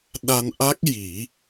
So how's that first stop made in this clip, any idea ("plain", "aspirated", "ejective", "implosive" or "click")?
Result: implosive